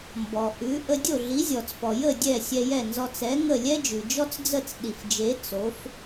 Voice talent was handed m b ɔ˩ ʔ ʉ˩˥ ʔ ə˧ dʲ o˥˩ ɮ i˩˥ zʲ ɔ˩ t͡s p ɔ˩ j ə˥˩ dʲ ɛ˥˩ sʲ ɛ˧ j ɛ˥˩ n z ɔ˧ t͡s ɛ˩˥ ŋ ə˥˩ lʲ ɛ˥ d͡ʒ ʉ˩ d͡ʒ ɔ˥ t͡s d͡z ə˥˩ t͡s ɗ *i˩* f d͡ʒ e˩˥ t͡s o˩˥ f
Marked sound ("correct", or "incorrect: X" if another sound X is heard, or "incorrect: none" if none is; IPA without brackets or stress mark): correct